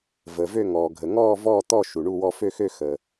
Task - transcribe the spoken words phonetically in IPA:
vəː˩vø˦˨ ŋɔː˩ɡʱə˩ ŋɔː˦˨vɔː˦˨t̪ɔ˦˨ ʃu˩ɳu˦˨wɔ˦˨ fø˦˨xø˦˨ xəː˩

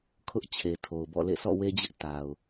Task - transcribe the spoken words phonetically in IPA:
kʰʊ˦ʔt͡ɕʰe˨tʰo˨ʊ̯bɔ̰˦˨ lḛ˦˨sʰɔ̰˦˨we˦d͡ʑɪ˦ʔ ta˨ʊ̯

